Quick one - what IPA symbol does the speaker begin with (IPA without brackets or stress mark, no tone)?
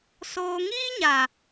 s